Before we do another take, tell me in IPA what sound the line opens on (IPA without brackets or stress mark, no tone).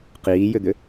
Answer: q